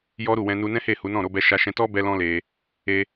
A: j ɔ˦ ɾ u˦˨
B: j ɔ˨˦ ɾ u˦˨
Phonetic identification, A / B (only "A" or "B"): A